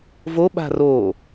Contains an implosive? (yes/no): yes